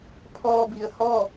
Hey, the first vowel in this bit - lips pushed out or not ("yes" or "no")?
yes